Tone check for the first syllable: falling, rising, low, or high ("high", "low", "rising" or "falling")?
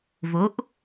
rising